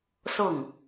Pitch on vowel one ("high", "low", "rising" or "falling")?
falling